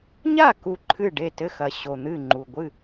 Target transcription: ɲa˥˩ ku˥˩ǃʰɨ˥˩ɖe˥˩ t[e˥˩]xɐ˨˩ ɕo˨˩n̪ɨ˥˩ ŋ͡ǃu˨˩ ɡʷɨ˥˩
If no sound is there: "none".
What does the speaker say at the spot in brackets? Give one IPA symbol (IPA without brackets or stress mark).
ɘ˥˩